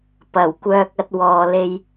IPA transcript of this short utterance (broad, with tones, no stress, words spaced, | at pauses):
pɐ˨˩w kʷœː˧k̚ɐ˧t̚ wɔː˨le˧j